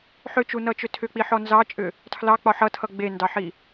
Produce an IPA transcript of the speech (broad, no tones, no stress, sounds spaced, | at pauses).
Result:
ħ ʏ t͡ʃ u n ʌ t͡ʃ ʏ tʰ ʏ k͡p i ħ ɔ n z ɑ t͡ʃʼ ʏ | tʰ l ɑ k͡p ɒ ħ ʌ tʰ ʌ ɡ͡b e n d ɑ ħ i